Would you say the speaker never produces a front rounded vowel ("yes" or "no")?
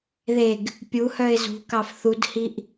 no